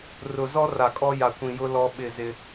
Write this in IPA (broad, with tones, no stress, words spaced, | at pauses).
rʊ˨zɔ˦ ra˨ kʼɔ˦ja˨kʷĩ˨jʊ˦ lɔ˦ɓɪ˦˨ zɪ˦